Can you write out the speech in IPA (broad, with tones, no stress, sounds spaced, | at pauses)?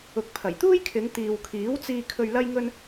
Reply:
ʊ˨ k̚ pʰ ɐ˨˩ j t̪ uː˥ j kʰ ɪ˨˧ ŋ t̪ iː˨ w kʰ iː˨˥ w t͡s iː˧ kʰ ɵ˧ ɥ l ɐ˥ j ŋ ɵ˥ n